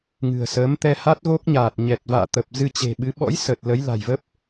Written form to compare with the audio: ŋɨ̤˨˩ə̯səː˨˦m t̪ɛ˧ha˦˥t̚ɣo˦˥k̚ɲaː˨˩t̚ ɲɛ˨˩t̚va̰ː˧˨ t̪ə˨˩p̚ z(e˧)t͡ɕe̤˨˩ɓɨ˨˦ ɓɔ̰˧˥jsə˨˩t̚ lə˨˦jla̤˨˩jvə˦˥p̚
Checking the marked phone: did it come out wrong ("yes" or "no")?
yes